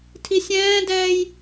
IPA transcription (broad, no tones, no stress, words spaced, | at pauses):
tʰisʲɛ̃ːdɛːj